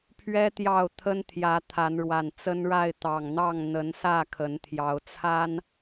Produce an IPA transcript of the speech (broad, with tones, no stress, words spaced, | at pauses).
pʰɥɛ˦ t̪jɑ˥˨ʊ̯ t̪ʰə˦n t̪ʰjä˨˦ t̪ʰa˨˦nɻwa˨˩n t͡sə˦nɻa˥˨ɪ̯ t̪ɑ˨˩ŋn̪ɑ˥˨ŋ n̪ə˨˦nsä˥˨ kʰə˨˦nt̪ʰjɑ˨˦ʊ̯ t͡sʰa˦n